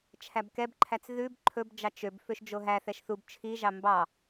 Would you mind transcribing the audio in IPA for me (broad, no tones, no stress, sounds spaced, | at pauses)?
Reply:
t͡ʃʰ æ b k ɛ b ǃʰ æ t͡s ð ʉ b ǃʰ ɵ b d͡ʒ ɑ t͡ʃ ø b f ø ʃ d͡ʒ o ɦ æ θ ɛ ʃ θ u b t͡ʃʰ i ʒ ɑ m b ɑ